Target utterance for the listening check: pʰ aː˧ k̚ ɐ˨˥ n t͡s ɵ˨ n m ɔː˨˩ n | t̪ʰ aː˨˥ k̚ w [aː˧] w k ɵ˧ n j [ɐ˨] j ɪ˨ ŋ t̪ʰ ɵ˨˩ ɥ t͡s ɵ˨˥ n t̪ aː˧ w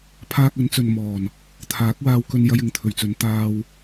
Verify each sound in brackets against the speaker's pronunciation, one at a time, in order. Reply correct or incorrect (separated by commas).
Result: correct, incorrect